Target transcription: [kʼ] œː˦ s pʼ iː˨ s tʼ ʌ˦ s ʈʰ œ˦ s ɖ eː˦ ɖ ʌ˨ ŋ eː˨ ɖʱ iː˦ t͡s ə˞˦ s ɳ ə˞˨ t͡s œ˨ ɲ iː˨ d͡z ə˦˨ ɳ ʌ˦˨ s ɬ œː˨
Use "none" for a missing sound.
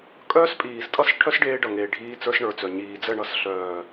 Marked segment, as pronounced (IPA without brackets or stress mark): kʼ